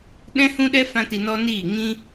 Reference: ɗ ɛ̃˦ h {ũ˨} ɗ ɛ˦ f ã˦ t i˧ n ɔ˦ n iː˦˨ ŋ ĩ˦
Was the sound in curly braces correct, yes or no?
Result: no